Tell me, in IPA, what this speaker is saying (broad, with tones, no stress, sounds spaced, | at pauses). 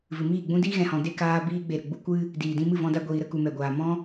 v ɨ˨ m iː˦˨ ɡ͡b ũ˦ d iː˦ ɣ ɛ̃˨ h ɔ̃˨ d e˦˨ k aː˦ b iː˧ ɡ͡b e˨ ɾ ə˨ ɡ͡b u˦ kʷ ɨ˦ | d iː˨ d ĩ˧ m ɨ˦˨ v ɔ̃˧ d a˧ ɡʷ iː˨ ɾ ə˧ k u˨ m ɛ˨ ɡʷ aː˨ m ɔ̃˦